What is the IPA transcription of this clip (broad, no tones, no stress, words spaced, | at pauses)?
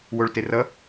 woɭterʌ